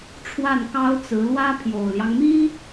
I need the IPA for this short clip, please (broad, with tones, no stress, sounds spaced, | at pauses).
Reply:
ʈ͡ʂʰ w a˥˩ n k ɑ˥ ʊ̯ t͡s ɹ̩˧˥ l w ä˥ pʰ j o˨˩ ʊ̯ l j ɑ˦ ŋ m i˥